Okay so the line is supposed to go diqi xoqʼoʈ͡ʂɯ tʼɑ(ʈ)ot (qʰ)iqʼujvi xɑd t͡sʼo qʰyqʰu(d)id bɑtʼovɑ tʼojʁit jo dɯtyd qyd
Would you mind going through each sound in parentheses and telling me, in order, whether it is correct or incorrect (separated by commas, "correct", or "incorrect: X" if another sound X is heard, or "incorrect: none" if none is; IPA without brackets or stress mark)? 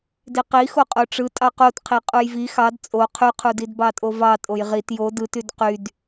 incorrect: q, correct, correct